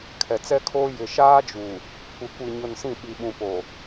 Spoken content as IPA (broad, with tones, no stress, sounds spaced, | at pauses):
kʰ ɛ˨ t͡s ɛ˦ kʰ oː˦ j ɪ˨ ʃ aː˦ d͡ʒ u˨ | kʷ ɪ˨ kʷ i˨ ɲ ʊ˨ n s ĩ˦˨ ɓ i˨ ɓ ũ˨ p o˨